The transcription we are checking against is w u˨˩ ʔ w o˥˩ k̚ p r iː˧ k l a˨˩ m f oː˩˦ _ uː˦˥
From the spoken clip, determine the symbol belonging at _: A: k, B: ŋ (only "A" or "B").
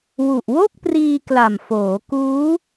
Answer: A